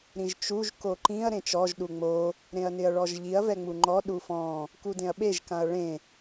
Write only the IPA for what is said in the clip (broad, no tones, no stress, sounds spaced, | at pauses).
ɾ ĩ ʒ t͡ʃ u ʒ k o ǃ ĩ ɐ̯ ɾ ẽ t͡ʃ ɔ ʒ ɗ u ŋ͡m o | ɾ ẽ ɐ̯ n ɪ ɐ̯ ɭ ɔ ʒ ʎ i ɐ̯ v ɛ ŋ͡m u ŋ͡ǃ ɔ ɗ u f ɔ̃ | k u d ẽ ɐ̯ ɓ e ʒ k ã ɐ̯ ɭ ẽ